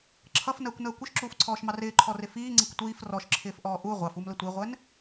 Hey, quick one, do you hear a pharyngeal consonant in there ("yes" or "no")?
no